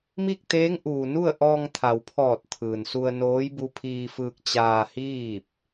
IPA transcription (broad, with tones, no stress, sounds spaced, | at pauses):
m i˥˨ k̚ t̪ eː˧˥ ŋ ʔ uː˩ n u˥˨ ə̯ ʔ ɔː˧ ŋ t̪ʰ a˩ w pʰ ɔː˧˩ t̚ t̪ʰ ɯː˩ n s u˧ ə̯ n oː˧˥ j b u˧ pʰ iː˧ f ɯː˧ k̚ t͡ɕ aː˧ h iː˥˨ p̚